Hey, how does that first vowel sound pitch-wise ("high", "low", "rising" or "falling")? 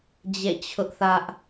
falling